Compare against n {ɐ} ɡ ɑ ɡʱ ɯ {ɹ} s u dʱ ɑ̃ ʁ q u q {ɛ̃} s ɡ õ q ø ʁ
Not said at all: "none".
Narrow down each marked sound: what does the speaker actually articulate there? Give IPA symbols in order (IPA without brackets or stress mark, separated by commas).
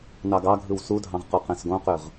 ɑ, w, ɛ̃